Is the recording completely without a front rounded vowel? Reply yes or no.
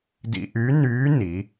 no